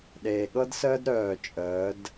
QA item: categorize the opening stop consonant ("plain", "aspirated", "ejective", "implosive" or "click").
implosive